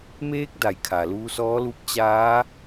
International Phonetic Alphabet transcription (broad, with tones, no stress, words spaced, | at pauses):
meː˧˥k̚ da˩˧jkʰa˩luː˧sɔː˧˥ lu˧p̚t͡ɕaː˧˥